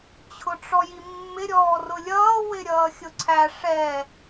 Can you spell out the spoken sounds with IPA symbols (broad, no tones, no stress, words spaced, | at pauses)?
t͡ɕʰʊʈ͡ʂɔjimːɪ ɾʲɔːrʊlʲʌː wɪɾʲʌːxʲʊǀʰæ ʂɛ